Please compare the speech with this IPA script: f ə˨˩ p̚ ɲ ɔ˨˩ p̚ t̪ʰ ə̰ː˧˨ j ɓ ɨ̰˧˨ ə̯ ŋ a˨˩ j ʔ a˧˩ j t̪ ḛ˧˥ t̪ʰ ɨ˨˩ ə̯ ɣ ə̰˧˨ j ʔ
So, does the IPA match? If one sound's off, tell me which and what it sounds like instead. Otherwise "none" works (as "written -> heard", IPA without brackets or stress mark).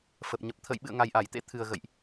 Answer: ɔ˨˩ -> ə˨˩